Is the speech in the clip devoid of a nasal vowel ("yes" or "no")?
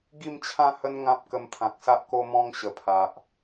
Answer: no